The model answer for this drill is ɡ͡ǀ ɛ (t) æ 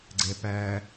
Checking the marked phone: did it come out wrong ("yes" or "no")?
yes